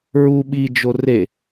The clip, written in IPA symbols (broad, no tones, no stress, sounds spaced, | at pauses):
ɹ u ɓ i d͡ʒ o r e